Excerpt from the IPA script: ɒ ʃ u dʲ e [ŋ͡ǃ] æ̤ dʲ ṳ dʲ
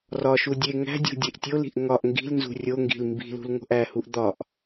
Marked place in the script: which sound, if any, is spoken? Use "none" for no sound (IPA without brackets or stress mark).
ŋ